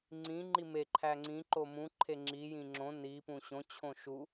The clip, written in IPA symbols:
ŋ͡ǀ ĩ ŋ͡ǃ i m e ǃʰ æ ŋ͡ǀ ĩ ǃ o m ũ ǃʰ e ŋ͡ǁ i j ĩ ŋ͡ǁ õ n i p ũ ɕ õ t͡ɕʰ õ ʃ u

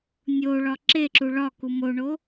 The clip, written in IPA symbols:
nʲ o ɭ ɒ ǁ e ǁ u ɭ ɒ k u m o ɳ o

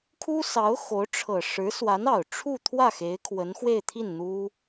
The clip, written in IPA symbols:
kʰ u˥ s ɑ˧˥ ʊ̯ x o˧˥ ʊ̯ ʈ͡ʂʰ ɤ˨˩ ʂ ɻ̩˧˥ s w a˧˥ n ɑ˨˩ ʊ̯ ʈ͡ʂʰ u˥˧ t̪ʰ w ä˥˩ x e˧˥ ɪ̯ kʰ w ə˧˥ n x w e˥˧ ɪ̯ t̪ʰ i˥˩ n n̪ u˥

